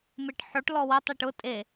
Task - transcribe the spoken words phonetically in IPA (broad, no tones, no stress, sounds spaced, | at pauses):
m e ʈ ħ o ʈ l ɔ w ə tˤ e ʈ ʊ tʼ e